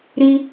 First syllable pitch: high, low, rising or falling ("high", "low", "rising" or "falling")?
high